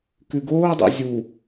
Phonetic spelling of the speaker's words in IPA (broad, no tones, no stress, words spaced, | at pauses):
kʉɡoːdˤo̰ zʲu